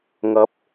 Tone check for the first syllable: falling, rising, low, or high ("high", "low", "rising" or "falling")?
rising